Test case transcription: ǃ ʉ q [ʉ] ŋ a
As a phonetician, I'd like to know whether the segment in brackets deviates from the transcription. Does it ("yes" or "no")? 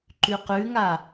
no